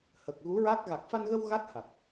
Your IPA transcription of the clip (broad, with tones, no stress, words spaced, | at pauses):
hə˨˩k̚ ɣu˧˥ɹa˦˥k̚ ɣa˨˩k̚fa˧nɣə˧w ɣa˦˥t̚ha˨˩t̚